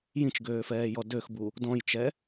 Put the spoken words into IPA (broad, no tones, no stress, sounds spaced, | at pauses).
j ĩ t͡ʃ ɡ øː f ɛː j ɔ d ø x b u | d ɔ̃ j t͡ʃ ɛ